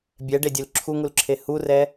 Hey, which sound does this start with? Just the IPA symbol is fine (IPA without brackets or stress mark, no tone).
bʲ